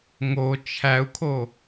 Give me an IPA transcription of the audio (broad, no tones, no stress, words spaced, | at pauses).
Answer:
ŋo t͡ʃʰæu̯kʰo